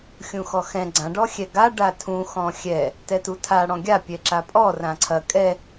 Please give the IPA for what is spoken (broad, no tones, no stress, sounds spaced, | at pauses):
xʲ ũ x ɔ x ɛ̃ ɡ͡ǀ ã ɖ ɔ xʲ ɛ ɡ a ɖ a tʰ ũ x ɔ̃ xʲ ɛ | t ɛ t u tʰ a ɽ ɔ̃ ɡʲ a pʲ ɛ ǁ a pʼ ɔ r ã ǀʰ ɐ kʼ ɛ